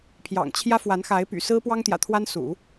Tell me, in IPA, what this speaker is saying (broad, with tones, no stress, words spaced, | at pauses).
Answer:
pʰjɑ̰˨˩ŋ t͡ɕʰjä˥fwa˧˥nxa˧˥ɪ̯ py̰˨˩sɹ̩˥pwɑ˥ŋt̪jä̰˨˩ t̪ʰwa˥nsṵ˨˩˦